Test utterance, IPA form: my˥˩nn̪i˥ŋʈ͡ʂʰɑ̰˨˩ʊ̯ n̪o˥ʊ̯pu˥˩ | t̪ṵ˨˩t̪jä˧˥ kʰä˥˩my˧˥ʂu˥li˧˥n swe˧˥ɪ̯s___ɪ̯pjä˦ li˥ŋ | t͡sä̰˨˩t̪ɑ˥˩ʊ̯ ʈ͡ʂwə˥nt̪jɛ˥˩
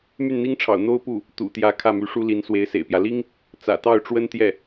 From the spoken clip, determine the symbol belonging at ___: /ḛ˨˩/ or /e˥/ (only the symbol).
ḛ˨˩